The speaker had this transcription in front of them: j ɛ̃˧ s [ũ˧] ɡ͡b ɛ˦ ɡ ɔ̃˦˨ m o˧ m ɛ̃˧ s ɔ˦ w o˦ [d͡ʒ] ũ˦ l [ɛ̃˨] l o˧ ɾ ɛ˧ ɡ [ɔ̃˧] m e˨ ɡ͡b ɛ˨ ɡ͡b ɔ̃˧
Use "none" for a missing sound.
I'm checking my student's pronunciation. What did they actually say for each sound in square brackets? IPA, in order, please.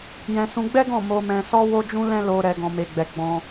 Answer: ũ˧, d͡ʒ, ɛ̃˦, ɔ̃˨

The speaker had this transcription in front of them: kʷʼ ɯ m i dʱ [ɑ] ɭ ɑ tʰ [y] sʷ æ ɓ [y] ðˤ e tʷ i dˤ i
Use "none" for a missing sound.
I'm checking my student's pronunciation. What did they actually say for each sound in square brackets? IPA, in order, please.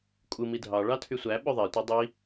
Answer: ɑ, y, ø

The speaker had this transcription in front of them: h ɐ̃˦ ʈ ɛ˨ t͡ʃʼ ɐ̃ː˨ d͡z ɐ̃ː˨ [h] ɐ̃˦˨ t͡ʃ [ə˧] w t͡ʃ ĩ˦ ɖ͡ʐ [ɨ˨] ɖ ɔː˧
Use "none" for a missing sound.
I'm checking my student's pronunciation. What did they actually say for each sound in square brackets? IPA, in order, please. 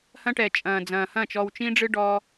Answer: h, ɔ˧, ɨ˦

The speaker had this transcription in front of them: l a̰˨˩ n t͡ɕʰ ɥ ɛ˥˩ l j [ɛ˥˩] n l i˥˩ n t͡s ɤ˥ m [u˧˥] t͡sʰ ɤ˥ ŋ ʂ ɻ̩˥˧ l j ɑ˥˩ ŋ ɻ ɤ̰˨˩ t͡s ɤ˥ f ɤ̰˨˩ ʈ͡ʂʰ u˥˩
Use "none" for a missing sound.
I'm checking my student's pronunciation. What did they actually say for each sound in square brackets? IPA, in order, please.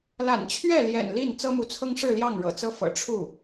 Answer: ɛ̰˨˩, u˧˥

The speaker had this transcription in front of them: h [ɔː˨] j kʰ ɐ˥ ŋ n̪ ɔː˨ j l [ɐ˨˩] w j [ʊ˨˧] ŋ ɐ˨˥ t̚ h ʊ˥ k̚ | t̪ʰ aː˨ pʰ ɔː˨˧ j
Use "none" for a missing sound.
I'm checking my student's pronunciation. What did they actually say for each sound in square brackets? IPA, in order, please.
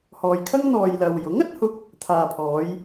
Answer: ɔː˨, ɐ˨, ʊ˨˥

